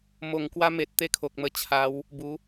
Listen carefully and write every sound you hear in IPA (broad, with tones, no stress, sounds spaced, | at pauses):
m o˨˩ ŋ k w a˧ m e˨ t̚ t̪ e˦ kʰ o˨ k̚ m ə˧ t͡ɕʰ a˨˦ w | b u˨˦